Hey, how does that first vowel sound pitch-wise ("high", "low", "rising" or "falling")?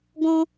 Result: high